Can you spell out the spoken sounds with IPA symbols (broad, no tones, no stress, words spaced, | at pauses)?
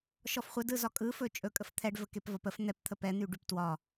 ʃɔfχʷədɯzɒ kʼɯfɵ t͡ʃʼɵ kʼəft̪ʰɛɖ vəkepvɒpəf n̪ɛpt̪ʰə pɛn̪yɖyp twɒ